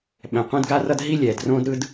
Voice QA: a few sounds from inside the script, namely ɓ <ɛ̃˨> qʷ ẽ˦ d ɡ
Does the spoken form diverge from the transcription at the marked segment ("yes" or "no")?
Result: no